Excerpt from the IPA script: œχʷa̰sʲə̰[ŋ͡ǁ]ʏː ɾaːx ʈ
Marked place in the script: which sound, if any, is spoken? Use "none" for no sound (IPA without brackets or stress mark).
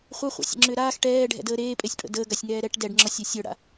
ŋ͡ǁ